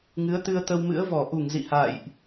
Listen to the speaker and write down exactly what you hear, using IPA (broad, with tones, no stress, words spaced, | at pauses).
ŋɨ˨˦ə̯t̪ɨ˧ə̯ t̪ə˧wmɨ̰˧˥ə̯vɔ˧˩ ʔu˧˩ŋ zḭ˧˨ha̰ː˧˨jʔ